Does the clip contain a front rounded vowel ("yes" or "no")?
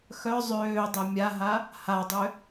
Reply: yes